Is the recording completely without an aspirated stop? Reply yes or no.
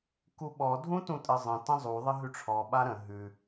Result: no